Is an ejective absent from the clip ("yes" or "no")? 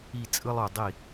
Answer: no